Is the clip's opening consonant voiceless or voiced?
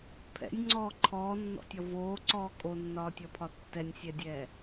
voiceless